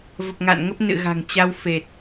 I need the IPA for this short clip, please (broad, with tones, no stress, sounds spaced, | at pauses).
v ə˨˩ p̚ ŋ a̰ː˧˨ n ŋ ə˦˥ p̚ n ɨ̰˧˨ ɣ a̤˨˩ ŋ t͡ɕ a˧ w f e˨˩ t̚